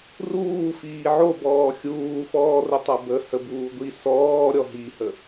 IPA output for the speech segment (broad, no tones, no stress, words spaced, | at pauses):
ruːfiː ʕobɔː xʲuːfɔːrə tˤɐbə həbuːɡʷi sɔː ɾʲɔɦihə